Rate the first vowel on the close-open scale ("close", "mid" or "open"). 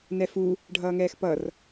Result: mid